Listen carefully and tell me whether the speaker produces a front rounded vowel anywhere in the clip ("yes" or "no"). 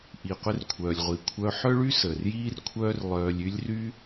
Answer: yes